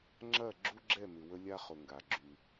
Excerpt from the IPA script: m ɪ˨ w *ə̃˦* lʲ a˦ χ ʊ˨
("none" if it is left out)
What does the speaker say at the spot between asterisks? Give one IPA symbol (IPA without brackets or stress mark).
ə˦